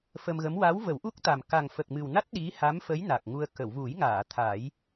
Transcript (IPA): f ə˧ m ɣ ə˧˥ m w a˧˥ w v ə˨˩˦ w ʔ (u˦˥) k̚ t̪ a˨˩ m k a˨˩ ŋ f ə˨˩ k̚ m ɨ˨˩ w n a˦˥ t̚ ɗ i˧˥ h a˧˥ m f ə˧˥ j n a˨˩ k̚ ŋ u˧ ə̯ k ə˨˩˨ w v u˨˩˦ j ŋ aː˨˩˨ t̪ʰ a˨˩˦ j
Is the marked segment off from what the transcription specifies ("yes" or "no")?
no